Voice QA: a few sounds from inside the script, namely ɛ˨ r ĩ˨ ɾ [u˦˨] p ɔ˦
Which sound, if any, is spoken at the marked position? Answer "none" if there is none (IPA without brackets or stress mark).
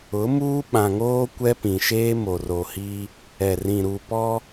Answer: u˨